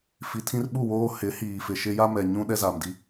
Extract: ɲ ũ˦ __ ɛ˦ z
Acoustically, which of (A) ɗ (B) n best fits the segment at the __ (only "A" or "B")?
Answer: A